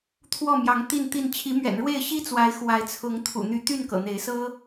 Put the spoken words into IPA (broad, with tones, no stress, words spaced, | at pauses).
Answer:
t̪ʰwɔ˥˨mjɑ˨˦ŋ t̪i˥˨nt̪i˥˨n t͡ɕʰi˨˦mɥɛ̰˨˩nɻwe˥˨ɪ̯ ɕi˦t͡swa˨˦ɪ̯ xwa˨˦ɪ̯t͡sʰʊ˨˦ŋ t̪ʰṵ˨˩n̪y˨˦t̪y˥˨n kɤ̰˨˩n̪e˨˦ɪ̯sɤ˦